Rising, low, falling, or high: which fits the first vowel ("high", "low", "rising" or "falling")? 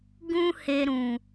high